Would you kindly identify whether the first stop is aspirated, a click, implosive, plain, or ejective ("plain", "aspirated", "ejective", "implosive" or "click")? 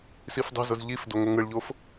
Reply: plain